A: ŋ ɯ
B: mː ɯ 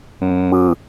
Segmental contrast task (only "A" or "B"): B